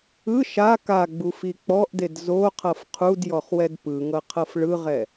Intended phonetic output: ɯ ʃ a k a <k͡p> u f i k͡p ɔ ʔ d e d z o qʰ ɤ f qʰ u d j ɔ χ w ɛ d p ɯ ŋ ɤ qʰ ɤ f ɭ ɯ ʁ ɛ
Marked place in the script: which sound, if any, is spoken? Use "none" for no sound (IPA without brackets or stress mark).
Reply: ɡ͡b